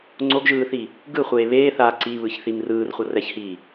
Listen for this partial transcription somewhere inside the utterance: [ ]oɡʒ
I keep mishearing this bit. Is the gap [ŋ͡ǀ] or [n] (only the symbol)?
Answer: ŋ͡ǀ